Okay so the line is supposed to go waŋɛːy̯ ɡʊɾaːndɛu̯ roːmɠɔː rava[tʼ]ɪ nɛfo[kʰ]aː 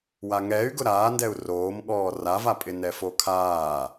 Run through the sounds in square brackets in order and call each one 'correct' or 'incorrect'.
incorrect: pʼ, correct

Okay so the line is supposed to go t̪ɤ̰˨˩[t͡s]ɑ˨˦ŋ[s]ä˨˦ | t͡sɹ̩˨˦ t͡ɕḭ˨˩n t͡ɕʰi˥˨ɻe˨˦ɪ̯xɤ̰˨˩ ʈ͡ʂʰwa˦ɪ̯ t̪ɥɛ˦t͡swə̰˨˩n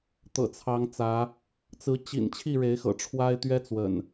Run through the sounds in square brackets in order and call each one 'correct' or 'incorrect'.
incorrect: t͡sʰ, incorrect: t͡s

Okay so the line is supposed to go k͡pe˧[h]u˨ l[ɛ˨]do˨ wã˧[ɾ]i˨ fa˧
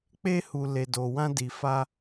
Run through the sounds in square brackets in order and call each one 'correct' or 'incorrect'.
correct, incorrect: e˨, incorrect: d

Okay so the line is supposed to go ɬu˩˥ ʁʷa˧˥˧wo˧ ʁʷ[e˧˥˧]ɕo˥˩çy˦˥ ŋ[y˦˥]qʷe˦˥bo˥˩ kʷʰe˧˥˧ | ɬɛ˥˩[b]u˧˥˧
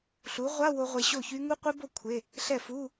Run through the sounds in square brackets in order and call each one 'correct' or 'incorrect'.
incorrect: e˧, incorrect: u˦˥, incorrect: f

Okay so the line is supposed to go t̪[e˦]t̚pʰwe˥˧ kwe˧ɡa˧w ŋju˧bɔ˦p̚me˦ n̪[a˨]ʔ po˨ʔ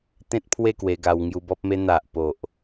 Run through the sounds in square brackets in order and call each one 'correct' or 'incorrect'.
incorrect: ẽ˦, correct

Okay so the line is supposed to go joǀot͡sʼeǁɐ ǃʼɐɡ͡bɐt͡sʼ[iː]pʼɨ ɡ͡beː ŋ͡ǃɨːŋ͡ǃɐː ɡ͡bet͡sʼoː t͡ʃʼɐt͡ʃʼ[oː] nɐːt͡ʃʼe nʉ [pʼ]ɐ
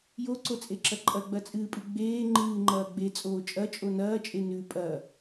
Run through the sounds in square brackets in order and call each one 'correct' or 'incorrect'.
incorrect: ɨː, incorrect: o, correct

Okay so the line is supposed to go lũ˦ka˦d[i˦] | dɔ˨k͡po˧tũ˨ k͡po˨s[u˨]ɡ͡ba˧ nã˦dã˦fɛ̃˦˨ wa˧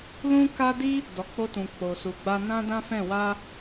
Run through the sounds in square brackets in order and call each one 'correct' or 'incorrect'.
correct, correct

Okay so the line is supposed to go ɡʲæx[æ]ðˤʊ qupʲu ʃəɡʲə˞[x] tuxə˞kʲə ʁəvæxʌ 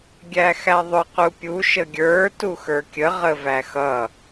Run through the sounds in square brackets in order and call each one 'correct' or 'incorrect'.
correct, incorrect: none

